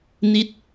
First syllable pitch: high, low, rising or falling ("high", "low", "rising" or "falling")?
falling